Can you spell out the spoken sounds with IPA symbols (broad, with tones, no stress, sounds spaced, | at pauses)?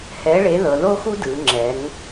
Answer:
h ɛ˨˥ ɭ e˨˥ ð ɤ˩˧ ð o˥ x u˥ d ɯ˩˧ ŋ͡ǁ ɛ˩˧ ŋ